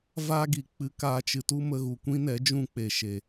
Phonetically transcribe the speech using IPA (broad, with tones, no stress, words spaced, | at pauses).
vaː˦ɡi˨ k͡pɨ˧kaː˧t͡ʃɨ˨tu˦ mə˧ɣu˨kʷĩ˦nɛ˨˦ d͡ʒũ˦k͡pe˨ʃe˨